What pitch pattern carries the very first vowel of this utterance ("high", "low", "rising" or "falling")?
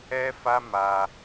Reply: high